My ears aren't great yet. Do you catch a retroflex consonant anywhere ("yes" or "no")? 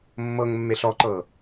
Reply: no